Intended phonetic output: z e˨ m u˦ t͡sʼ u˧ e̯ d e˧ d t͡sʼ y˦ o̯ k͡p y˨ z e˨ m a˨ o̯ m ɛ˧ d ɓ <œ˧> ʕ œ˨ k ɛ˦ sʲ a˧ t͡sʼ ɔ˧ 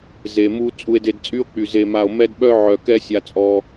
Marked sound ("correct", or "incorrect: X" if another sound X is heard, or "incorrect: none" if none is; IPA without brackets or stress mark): correct